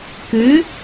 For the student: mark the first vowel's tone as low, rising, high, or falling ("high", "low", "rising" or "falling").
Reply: rising